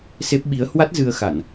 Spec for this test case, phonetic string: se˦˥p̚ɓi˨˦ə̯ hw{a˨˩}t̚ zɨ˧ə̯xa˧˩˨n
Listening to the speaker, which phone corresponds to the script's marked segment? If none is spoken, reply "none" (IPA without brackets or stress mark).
a˦˥